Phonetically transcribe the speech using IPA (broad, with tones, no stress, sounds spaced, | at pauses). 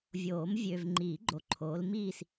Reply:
vʲ oː˨˩˦ m vʲ ø˨ v ŋ͡ǃ iː˨˩˦ ɡ͡ǃ o˨˦ ǃʰ oː˨˦ l m iː˥˧ s